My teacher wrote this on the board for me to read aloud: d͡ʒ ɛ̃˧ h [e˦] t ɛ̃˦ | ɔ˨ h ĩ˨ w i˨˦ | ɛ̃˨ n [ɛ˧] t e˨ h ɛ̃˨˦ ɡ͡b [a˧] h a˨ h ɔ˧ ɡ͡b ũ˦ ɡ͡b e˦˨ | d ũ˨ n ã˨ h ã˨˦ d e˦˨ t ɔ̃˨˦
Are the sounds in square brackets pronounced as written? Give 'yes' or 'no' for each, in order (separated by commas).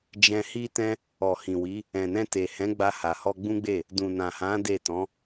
no, no, yes